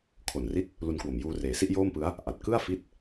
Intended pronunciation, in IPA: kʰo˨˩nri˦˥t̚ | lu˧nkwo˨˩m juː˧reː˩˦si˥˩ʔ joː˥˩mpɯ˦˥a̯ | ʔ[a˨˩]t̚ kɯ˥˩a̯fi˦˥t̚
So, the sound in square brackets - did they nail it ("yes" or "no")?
yes